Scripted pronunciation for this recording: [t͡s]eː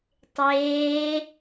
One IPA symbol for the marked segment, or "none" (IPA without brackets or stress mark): tˤ